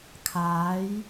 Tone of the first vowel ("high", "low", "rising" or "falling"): rising